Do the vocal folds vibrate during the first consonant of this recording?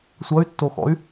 no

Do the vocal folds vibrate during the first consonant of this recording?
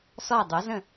no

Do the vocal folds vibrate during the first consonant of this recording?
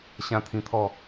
no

